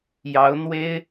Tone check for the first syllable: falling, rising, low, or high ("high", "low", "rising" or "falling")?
rising